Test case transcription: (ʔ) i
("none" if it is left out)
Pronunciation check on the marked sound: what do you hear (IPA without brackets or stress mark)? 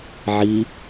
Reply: ʕ